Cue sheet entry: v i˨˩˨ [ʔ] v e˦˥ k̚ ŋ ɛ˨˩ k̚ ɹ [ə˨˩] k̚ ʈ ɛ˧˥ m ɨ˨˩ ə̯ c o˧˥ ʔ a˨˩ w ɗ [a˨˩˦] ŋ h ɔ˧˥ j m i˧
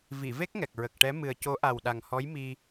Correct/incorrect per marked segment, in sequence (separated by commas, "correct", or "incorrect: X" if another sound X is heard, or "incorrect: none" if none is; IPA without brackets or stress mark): incorrect: none, correct, incorrect: a˨˩